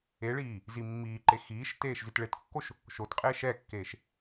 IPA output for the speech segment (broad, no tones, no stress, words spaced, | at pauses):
eɭiː | zimːiːǃe xiːʃ teːʃzitɭetkːoʃ | ʃotqʼe ʃɛkːeːʃ